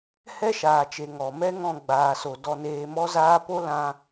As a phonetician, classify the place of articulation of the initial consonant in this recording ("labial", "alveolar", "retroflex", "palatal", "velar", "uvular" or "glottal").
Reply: glottal